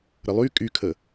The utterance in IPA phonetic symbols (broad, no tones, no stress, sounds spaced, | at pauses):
ɾ ə lˠ y kʼ y kʰ ə